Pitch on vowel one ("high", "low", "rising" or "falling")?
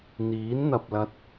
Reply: rising